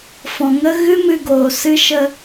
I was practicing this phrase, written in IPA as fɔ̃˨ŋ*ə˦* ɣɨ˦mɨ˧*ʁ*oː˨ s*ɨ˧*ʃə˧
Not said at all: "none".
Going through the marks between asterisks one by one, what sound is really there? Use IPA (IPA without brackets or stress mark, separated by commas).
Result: ə˦, ɡ, ɨ˧